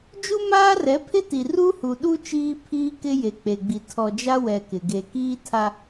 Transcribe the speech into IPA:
d͡ʒ u˦ m aː˦ r ɛ˨˦ pʰ ɪ˦ t i˨ r u˦ h u˨ ɗ u˦ t͡ʃ iː˦ pʰ iː˦ k ɪ˦ j e˨ k͡p e˨ ɡ͡b i˨ tʰ ɔ˨ d͡ʒ a˦ w ɛ˨ k ɪ˨ ɡ e˨ k iː˦ tʰ a˦

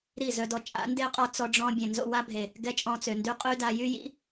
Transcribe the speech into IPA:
ɾ i˦˨ z œ˧ d ɔ˧ t͡ʃʼ a̰˨˦ n d e˦ qʼ ɔ˧ t͡s ɔ˦ ɖ͡ʐ ɔ̃˦ bʲ ɛ̃˨ n z o̰˧ w a˦ bʱ e˨ | ɡ ɛ˦ t͡ʃʼ ɔ̃˧ t͡s ø˨ n d y˦ qʼ y˦ d a˧ j y˦ j ḭ˦

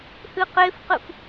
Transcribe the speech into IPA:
h ɨ q e f q ɨ f

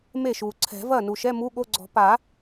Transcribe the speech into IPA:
m e˥˩ ʃ u˩ ǀʰ ɛ̤˨˩˦ v ɐ˥˩ n u˩ ʃ ɛ˧˥˧ m u˧˥˧ ɠ o˧˥˧ ɡ͡ǀ ɔ̤˨˩˦ p a˨˩˦

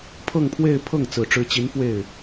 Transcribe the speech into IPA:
pʰ ɤ˥˧ ŋ pʰ w e˥˧ ɪ̯ pʰ ɤ˥˩ ŋ t͡s ɹ̩˨˩ ʈ͡ʂ ɻ̩˧˥ t͡ɕ i˧˥ n f w e˥˩ ɪ̯

